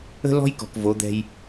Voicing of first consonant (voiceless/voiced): voiced